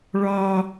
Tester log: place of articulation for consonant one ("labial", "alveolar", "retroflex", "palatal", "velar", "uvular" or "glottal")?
retroflex